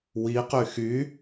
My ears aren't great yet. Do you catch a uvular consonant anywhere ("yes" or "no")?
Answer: yes